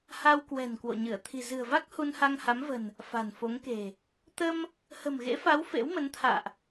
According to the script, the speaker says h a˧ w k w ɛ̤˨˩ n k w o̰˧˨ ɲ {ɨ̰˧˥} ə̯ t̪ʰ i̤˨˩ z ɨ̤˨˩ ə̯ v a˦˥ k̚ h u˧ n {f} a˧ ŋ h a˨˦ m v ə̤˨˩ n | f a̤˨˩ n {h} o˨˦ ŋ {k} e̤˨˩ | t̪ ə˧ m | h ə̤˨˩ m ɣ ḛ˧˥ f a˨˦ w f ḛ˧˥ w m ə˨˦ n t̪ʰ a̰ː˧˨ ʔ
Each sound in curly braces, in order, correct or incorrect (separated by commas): incorrect, incorrect, incorrect, correct